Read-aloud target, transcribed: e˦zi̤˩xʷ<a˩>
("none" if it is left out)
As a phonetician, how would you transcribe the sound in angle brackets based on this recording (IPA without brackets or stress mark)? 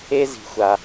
a˩